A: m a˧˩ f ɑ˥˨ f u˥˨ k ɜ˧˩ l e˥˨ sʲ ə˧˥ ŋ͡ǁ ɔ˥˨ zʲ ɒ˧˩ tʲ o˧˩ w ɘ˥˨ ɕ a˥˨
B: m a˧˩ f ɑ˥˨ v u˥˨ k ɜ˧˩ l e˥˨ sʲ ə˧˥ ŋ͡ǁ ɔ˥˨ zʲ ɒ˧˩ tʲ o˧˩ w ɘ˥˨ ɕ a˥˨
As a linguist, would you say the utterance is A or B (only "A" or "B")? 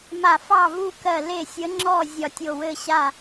B